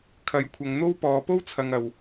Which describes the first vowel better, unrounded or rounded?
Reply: unrounded